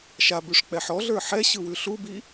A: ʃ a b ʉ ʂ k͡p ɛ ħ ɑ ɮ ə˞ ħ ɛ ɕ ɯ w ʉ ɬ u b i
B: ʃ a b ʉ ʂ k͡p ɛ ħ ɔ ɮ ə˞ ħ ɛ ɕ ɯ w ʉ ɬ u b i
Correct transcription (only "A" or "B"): B